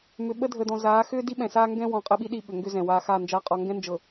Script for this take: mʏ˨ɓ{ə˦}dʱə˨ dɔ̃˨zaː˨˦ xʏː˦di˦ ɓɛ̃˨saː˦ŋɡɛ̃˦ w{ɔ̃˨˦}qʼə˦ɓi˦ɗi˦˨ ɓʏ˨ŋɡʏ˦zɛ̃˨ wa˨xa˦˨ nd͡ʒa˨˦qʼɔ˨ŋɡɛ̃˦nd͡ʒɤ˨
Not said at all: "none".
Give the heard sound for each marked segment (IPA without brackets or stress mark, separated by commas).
ə˦, ɔ̃˨˦